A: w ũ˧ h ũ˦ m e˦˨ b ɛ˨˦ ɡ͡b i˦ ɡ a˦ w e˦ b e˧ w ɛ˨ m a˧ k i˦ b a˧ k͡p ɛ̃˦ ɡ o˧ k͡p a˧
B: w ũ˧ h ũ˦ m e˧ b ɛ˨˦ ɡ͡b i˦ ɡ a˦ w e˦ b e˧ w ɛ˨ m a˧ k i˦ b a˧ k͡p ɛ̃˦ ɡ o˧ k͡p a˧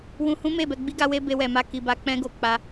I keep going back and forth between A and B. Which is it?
A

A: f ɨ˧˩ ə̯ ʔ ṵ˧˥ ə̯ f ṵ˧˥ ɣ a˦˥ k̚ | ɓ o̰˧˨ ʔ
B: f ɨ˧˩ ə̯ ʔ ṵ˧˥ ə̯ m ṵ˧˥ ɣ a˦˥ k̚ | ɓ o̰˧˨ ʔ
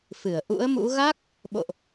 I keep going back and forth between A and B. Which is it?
B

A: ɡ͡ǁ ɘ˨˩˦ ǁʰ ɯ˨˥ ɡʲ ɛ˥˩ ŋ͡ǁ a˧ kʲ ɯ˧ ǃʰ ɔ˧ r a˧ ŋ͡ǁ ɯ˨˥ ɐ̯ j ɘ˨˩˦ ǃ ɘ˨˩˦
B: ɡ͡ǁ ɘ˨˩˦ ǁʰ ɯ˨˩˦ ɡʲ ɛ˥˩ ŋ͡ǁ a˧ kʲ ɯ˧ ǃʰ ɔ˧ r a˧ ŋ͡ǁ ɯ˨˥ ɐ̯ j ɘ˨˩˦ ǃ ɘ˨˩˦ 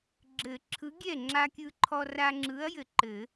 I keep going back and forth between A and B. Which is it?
A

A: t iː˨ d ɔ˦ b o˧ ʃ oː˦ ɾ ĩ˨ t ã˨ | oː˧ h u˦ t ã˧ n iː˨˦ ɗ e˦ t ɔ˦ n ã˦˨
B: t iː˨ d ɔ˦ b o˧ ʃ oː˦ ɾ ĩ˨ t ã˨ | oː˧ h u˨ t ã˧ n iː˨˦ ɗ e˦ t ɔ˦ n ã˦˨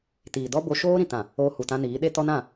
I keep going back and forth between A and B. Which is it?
B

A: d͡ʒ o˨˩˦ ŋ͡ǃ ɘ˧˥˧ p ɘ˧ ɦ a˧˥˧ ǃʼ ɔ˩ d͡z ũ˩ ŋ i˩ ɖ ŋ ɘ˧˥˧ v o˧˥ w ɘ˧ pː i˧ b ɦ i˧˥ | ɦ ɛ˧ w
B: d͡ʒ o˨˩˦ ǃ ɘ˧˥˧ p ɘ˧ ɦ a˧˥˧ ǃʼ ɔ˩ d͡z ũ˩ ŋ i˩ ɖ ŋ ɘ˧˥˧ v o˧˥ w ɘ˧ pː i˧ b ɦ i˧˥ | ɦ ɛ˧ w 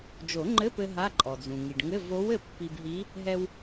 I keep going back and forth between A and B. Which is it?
A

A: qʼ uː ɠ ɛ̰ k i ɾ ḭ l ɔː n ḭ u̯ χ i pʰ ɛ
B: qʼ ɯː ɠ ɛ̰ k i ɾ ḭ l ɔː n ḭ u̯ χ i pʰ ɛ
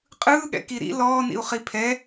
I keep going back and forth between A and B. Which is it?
B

